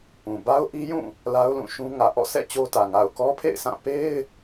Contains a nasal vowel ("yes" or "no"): yes